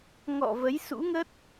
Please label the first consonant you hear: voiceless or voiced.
voiced